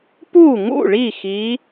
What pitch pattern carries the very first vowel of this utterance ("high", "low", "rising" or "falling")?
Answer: falling